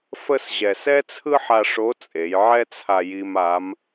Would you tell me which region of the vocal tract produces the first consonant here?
lips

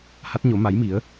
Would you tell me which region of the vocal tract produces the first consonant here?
throat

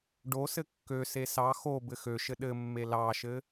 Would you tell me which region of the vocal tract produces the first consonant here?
retroflex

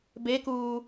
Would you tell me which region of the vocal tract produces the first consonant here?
lips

